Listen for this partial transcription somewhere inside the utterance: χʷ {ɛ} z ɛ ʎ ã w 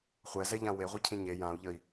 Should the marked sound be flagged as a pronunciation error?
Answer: no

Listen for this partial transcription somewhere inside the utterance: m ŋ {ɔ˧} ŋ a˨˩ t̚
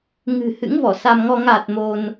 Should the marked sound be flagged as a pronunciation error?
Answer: no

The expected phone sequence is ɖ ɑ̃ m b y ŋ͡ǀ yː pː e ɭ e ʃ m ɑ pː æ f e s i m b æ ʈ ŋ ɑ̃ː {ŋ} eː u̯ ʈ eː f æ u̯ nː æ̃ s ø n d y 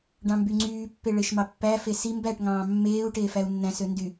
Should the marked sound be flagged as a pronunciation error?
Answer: yes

